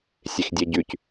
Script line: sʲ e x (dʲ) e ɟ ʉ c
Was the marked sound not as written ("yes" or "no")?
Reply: no